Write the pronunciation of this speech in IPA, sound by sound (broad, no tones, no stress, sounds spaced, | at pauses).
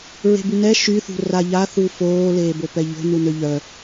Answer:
ɹ e̤ b y n ɛ ʃ y θ ṳ r a ʎ a θ u f oː l eː b o p ɛ ʎ o̤ n u n ø ʎ œ